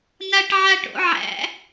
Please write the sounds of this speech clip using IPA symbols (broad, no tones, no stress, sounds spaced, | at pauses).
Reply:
n a ʈ ʕ a ʈ o̰ ʕ æ̰